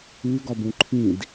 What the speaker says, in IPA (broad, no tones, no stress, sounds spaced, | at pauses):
ʉ ɡ ɒ b ũ ǃʰ ĩ d